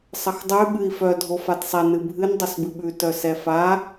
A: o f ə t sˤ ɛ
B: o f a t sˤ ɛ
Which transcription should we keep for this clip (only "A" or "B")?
B